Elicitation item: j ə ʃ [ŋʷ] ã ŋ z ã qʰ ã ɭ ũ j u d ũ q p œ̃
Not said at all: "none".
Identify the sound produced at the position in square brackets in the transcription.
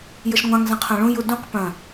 ŋʷ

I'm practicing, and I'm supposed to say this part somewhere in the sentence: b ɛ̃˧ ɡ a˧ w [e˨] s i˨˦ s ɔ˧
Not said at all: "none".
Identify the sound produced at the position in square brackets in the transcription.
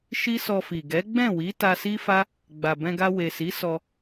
e˨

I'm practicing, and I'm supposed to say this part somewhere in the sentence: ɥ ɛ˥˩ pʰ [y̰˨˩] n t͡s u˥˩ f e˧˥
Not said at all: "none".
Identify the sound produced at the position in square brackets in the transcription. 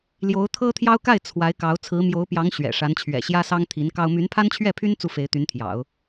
y˥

